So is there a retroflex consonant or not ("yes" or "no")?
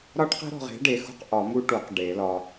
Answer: yes